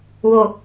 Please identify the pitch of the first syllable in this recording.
low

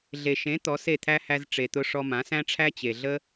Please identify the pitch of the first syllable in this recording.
low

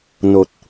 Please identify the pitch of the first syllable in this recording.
low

